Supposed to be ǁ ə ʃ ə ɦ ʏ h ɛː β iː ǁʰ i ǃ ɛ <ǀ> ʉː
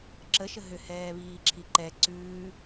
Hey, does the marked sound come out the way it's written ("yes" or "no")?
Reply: yes